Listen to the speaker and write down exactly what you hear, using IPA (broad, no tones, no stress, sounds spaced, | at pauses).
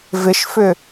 v ɪ ʃ f ʏ